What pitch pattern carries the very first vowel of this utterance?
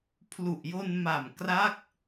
low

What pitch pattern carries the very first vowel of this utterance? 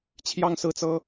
falling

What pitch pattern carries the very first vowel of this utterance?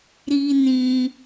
high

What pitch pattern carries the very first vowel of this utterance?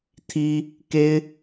high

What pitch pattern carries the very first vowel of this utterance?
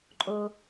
high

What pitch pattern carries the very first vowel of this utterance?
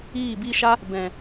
falling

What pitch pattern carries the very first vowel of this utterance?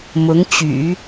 rising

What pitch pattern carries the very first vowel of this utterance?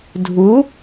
rising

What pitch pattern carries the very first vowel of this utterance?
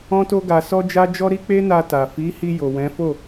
high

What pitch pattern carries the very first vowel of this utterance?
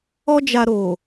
high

